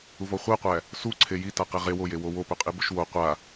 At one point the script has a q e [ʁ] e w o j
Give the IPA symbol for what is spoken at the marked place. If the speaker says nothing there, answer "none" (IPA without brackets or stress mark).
ʁ